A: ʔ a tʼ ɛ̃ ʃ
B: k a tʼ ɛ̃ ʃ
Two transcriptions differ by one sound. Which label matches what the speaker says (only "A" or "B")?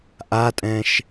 A